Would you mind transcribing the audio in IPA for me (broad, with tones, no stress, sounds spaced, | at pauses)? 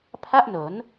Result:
pʰ a˥˩ ʔ n o˩˦ n